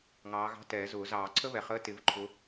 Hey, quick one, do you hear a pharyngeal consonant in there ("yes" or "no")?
no